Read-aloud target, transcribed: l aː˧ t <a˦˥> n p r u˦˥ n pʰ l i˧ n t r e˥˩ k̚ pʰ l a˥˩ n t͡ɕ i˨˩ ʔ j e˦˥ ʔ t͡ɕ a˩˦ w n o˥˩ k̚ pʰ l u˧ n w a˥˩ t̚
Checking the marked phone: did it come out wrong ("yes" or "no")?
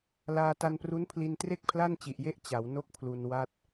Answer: yes